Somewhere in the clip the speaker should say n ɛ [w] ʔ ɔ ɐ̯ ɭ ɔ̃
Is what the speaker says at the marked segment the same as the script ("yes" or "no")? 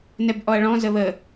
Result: no